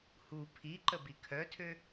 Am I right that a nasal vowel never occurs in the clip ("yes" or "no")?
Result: yes